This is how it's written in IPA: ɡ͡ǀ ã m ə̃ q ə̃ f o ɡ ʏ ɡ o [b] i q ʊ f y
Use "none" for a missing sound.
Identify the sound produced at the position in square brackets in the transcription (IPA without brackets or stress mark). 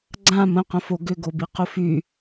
b